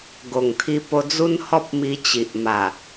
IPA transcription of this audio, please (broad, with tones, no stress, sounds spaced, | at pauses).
ɡ o˨˩ ŋ t̪ʰ i˧ p o˧ d͡z u˦ n h ɔ˦ p̚ m i˧ t͡ɕ i˨ ʔ m a˨˩